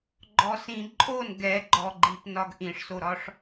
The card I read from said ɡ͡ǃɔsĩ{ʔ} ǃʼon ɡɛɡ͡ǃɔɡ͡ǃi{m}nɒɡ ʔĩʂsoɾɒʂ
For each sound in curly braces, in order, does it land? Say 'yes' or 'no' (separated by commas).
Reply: no, no